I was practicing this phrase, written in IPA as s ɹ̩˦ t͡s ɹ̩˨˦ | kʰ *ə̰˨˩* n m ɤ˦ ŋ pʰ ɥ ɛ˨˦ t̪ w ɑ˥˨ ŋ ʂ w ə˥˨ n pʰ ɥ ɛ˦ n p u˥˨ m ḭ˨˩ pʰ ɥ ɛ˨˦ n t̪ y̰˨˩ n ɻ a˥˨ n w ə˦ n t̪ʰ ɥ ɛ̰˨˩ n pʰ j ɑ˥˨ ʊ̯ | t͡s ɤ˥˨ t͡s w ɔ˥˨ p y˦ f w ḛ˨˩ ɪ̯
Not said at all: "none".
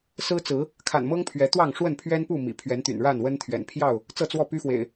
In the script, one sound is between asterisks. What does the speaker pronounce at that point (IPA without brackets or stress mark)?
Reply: a̰˨˩